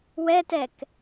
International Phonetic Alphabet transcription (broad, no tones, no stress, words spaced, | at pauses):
wɛtɛk